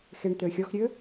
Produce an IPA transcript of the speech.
x e ɳ t̪ ø xʲ ɔ x ɾʲ ø

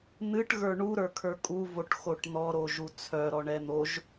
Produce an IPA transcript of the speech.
n̪ ɨ ʈ ɣ ə˞ ɳ u ɾ ə˞ kʰ ə˞ kʼ u v o ʈ x o ʈ n̪ ɔ ɾ o ʒ u t͡sʰ œ ɾ ɔ ɳ ɛ n̪ o ʒ

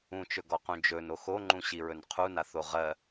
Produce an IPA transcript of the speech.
ũ t͡ʃ ɵ ɡ ɔ q ũ d͡ʒ ɵ n o x o ŋ͡ǃ ũ ɕ i ɹ ɵ n qʰ u n a θ o ʁ ɜ

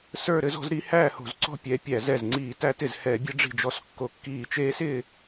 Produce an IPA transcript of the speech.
s ə˞˥˧ ɾ ɘ˧˥ z ɔ̤˥˧ z ɾ i˧˥ h æː˥˧ h o̤˧˩˧ z ǀ ɔ̤˥˧ pʲ ɛ˩˧˩ pʲ æ˧˩˧ z ɛ˧˩ z ŋ͡ǀ iː˧˩˧ t æ˧˥ t ɪ˧˩ z h ɛː˧˩˧ bʲ ɘ˧˥ ɖ͡ʐ i̤˧˩ d͡ʒ ɔ˧˩˧ s kː o˧˩ kː iː˧˩˧ t͡ʃ eː˧˥ s ɪː˥˧

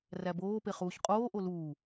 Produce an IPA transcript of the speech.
r æ b oː p e χ uː ç qʼ oː ʔ o l uː

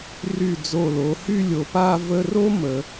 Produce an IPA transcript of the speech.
r y˧˩ d͡z o˧˩ l o˩˧ h y˥˧ lʲ o˩˧ p a˥˧ v ə˥ r o˥ m ə˩˧

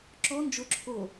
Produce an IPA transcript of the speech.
ǁ ɔ n d͡ʒ ʊ ǁʰ o

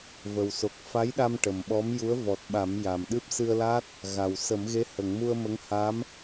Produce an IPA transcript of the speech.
v ə˨˩ w s o˨˩ k̚ f a˧˥ j ɗ a˧ m ʈ ə˨˩ m ɓ ɔ˧˥ m j u˧˥ ə̯ v ɔ˨˩ t̚ ɓ a˨˩˦ m j a˨˩ m ɗ ɨ˦˥ p̚ s ɨ˧ ə̯ l a˦˥ t̚ | ɣ a˨˩ w s ə˨˩˦ m ɣ e˧˥ h ə˨˩˨ ŋ m u˧ ə̯ m ə˧˥ ŋ h a˧˥ m

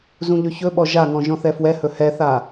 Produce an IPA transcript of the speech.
z ũ ʎ ɵ ç ɵ ɓ ɔ ʒ a ŋ ɔ̃ ʒ ɔ̃ θ ɛ f w ɛ h ɵ h ɛ θ a

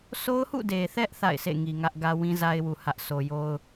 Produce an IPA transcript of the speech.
s o˦ ʊ̯ h ṵ˦˨ d e˨ θ ɛ˦ ʔ θ a̰˦˨ ɪ̯ sʰ ḛ˦˨ ŋ i˨ ŋ ä˦ ʔ ɡ ä˦ w ĩ˦ z a˦ ɪ̯ w u˨ h ä˦ ʔ s o˨ j o˦ ʊ̯

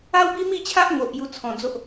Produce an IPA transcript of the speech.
a˦ w b i˦ m i˥˧ t͡ɕʰ a˦ ʔ ŋ o˨ ʔ j u˧ t͡sʰ ɔ̃˨˩ d͡z o˦ ʔ

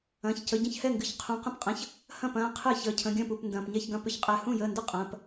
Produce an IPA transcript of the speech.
ɐ̃ː˩˧˩ ç c ə˩˧˩ ɟ ə̃˥˩ ç h ɛ˥˩ ŋ ɡ ɨ˩˧˩ ç qʰ ũ˩˧˩ q ə̃˥˩ p qʼ ə̃˩˧˩ ç | h ɐ̃˥˩ p ɐ̃ː˩˧˩ qʰ ɨ˥˩ ç əː˩˧˩ cʰ ə̃˩˧˩ ɡʲ ɐ̃ː˥˩ p u˩˧˩ p n d ɐ̃ː˩˧˩ p ɲ ɛ˥˩ ç ɡ ɐ̃˥˩ p ʏ˥˩ ç qʼ ɛ˩˧˩ h ũ˥˩ j əː˩˧˩ n d ə˥˩ qʼ ɐ̃ː˩˧˩ p

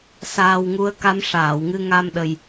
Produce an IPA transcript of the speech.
s aː˧ w ŋ u˧˥ ə̯ k a˧˥ m ʂ aː˨˩˨ w ŋ ɨ˧ ŋ a˧ m ɗ ə˨˩ j

